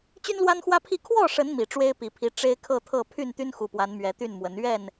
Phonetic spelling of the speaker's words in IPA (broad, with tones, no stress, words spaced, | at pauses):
t͡ɕy˦nlwa˦nxwä˦pʰi˥˨ kʰwɔ˥˨ʂə˨˦n mi˨˩ʈ͡ʂwe˦ɪ̯pi˨˩pʰi˨˦ ʈ͡ʂe˦ɪ̯kʰɤ˥˨t̪ʰɤ˥˨ pʰy˥˨nt̪y˦nxu˨˩pwa˨˦n mɥɛ˨˦t̪y˥˨nmwə˨˦n ɥɛ˥˨n